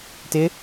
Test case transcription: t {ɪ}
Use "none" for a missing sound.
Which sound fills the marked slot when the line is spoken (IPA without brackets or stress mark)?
ɪ